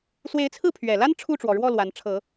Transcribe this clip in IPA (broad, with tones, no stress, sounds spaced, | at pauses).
s w e˧˥ ɪ̯ t͡sʰ ɹ̩˥˩ pʰ ɥ ɛ˨˩ l a˥ n ʈ͡ʂʰ u˥˩ ʈ͡ʂ w ɔ˩ ɻ w ɔ˥˩ l w a˧˥ n ʈ͡ʂʰ ɤ˨˩˦